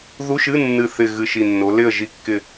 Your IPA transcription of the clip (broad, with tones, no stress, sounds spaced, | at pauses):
ð u˧˥˧ ʃ ɨ˧˥˧ nː ɨ˨˩ θ ɪ˨˩ ɣ ɨ˨˩ ʃ i˨˩ nː o˩˧ l ɪ˥˨ ə̯ ʒ i˥˨ kː ɪ˥˨